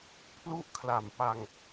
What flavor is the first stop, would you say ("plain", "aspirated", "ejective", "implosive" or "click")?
aspirated